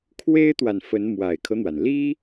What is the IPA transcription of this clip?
kʰwe˥ɪ̯t̪wa˨nfə˧˥n mwa˨˩ɪ̯kʰɤ˦n̪wa˩n li˥

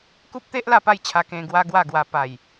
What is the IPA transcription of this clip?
ku˦p̚t̪e˦ʔ la˥˧pa˥˧jt͡ɕʰa˧ kẽ˧ɡwa˦ɡwa˥˧ɡwa˧ pa˨˩j

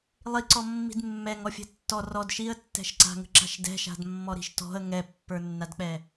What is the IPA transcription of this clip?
lˠiǀɔ mːi̤dmːɛŋ ɔfʲɛ̤tːɔ rɔd ʃiə̯tːɛ̤ʃǀa̤ŋə̤ ǁa̤ʃdɛ̤ʃa̤dmːɔ ɾi̤ʃtɔ̤ə̯ ŋɛpːə˞nːadk͡pɛ

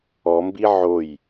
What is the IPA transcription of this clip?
ɔmbi ʕoj

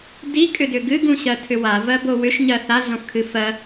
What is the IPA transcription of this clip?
dikʼʏdʏ ɡɨɡũɕɜtʰʏ wavɜbo wʏʃɲɜ θaɮõfkʰɨ fɜ

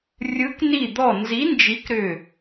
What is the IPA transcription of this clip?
rʲɯ˨˥k ni˧˩d̪ɔ˧˩nzi˨˥ nd͡ʒi˨˥kɾʏ˧˩

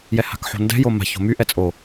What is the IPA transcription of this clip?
jɛha̤kħo̤ndɛ̤ joma̤ ço̤my ʔɛt͡sʼo

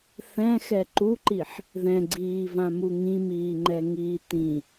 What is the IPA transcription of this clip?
θɛ̃xɛ ǃuǃiħ | ðɛ̃ɡ͡ǀiːvãmu ŋĩmiːŋ͡ǃɛŋiː tĩ

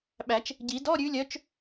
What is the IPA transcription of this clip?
ɓæ˨˩˦t͡ʃ | ɟi˨˩˦dɔ˧˥˧ɾʲʉ˨˦lʲœ˨˦t͡ʃ

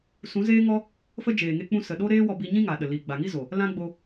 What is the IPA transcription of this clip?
sũ˨˦zeː˦ŋɔ˦ | fə˦ d͡ʒeː˨ ŋe˧k͡pũ˧ sə˨ ɗo˦ɾeː˦wɔ˧ bi˧ɲĩ˦ ŋa˨ɗə˨li˨ ɡ͡ba˨ŋi˦zo˨ | lã˦ɡ͡bo˧

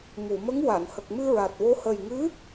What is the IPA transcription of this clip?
mu˨˩˨ mə˧˥ŋ wa˨˩˨n hə˨˩k̚mɨ˧ɹa˨˩t̚wo˧˥ hə˨˩jŋɨ˧˥

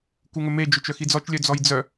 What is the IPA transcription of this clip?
kuŋɵme d͡ʒɵt͡ʃœxid͡zɔt͡ʃ lʲœd͡zɔjd͡zœ

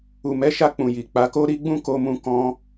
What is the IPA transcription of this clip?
u˨mɛ˨˦ʃa˧ k͡pũ˨ji˨ k͡pa˨˦ko˦ ɾi˦ɡ͡bũ˦ko˧mũ˧ kɔ̃˧

